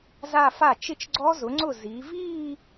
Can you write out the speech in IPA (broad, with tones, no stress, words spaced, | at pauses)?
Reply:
za˥˧fa˥˩ t͡ʃɪ˥˧t͡ʃɡ͡ǀɔ˦˥zʊ˩˥ŋ͡ǀʊ˥˩ zi˩˧viː˥˧